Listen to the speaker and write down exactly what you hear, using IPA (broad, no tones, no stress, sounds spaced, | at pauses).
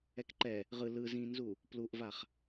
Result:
ɛ k ǃ ɛ | ʁ ɯ l ɯ z ĩ n z u | p l u ʔ v a χ